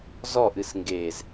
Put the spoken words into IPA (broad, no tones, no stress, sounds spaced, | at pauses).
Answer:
z ɔ ʔ ɨ s ŋ ɡ e z